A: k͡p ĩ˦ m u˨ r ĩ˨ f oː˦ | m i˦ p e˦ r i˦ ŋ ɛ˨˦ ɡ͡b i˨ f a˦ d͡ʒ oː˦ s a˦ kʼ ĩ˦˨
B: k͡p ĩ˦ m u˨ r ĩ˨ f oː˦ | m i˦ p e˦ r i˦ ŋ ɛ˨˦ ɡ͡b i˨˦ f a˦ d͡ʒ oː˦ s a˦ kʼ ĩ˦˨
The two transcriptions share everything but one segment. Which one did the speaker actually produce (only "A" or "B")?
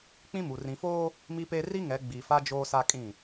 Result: A